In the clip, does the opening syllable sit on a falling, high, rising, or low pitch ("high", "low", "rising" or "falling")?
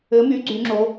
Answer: rising